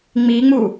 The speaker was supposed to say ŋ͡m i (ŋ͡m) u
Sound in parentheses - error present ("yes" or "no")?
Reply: no